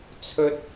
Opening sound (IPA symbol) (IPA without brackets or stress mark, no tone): t͡sʰ